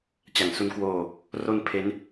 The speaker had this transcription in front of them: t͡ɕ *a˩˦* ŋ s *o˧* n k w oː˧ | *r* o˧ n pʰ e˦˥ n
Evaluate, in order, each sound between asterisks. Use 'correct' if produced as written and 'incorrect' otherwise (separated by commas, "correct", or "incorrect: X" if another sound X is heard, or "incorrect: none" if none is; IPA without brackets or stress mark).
correct, incorrect: u˧, correct